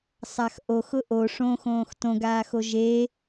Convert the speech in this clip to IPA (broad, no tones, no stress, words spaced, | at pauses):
sˤaxʔox ʊʔo ʂõxõːx tõɡaːxo ʒe